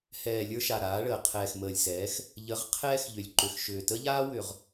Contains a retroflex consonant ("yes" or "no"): yes